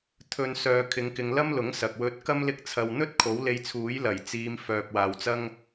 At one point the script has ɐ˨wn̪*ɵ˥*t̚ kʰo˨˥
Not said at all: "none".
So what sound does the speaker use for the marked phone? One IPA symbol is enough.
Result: ɵ˥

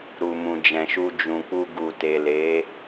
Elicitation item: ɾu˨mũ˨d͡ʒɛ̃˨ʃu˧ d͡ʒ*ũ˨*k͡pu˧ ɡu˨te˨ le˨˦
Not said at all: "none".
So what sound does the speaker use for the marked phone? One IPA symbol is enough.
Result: ũ˨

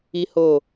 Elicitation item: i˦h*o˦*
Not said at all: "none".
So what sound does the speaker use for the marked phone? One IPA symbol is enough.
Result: o˦˨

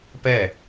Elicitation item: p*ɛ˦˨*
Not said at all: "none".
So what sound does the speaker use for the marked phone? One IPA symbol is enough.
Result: ɛ˦˨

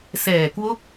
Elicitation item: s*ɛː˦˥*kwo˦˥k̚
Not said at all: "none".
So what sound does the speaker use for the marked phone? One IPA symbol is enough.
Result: ɛː˨˩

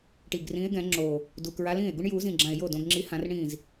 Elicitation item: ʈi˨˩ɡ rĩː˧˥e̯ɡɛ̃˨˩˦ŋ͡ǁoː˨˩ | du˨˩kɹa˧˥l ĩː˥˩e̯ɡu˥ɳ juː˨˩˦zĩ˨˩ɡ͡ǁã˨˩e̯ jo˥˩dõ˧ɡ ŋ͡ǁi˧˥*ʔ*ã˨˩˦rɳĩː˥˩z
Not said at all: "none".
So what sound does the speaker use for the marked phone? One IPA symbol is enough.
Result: h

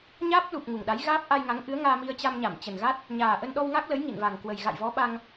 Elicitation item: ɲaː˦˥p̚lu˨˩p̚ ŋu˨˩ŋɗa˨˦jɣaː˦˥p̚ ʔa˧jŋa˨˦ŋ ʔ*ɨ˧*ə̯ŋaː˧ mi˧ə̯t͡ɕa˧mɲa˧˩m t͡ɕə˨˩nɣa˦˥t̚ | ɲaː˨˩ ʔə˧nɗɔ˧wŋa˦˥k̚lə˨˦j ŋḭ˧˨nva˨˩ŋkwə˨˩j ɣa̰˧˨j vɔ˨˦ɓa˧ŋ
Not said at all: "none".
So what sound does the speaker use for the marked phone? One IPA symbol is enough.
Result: ɨ˨˦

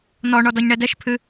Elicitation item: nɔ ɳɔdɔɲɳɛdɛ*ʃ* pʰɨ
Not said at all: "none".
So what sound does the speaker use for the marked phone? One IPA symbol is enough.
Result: ʃ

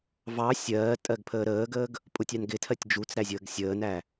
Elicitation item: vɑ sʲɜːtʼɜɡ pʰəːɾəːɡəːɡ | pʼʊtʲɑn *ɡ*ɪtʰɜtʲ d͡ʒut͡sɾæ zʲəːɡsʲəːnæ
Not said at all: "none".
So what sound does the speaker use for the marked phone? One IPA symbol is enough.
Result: ɡ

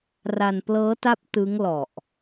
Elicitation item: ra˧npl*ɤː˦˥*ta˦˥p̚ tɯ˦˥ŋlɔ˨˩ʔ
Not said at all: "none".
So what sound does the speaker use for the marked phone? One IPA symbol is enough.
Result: ɤː˦˥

